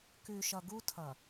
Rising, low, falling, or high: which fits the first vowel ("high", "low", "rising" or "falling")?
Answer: low